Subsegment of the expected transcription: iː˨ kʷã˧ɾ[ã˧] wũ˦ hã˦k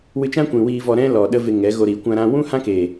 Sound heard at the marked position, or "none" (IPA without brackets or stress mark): ã˧